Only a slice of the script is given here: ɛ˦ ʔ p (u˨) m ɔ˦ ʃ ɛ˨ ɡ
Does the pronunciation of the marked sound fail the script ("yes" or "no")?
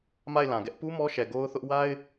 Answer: yes